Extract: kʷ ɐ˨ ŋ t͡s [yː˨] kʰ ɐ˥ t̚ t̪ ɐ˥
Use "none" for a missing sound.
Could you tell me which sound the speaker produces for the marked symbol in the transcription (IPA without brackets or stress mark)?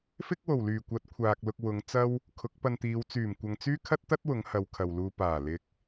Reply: yː˥